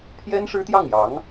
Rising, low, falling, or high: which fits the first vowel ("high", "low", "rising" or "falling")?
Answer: high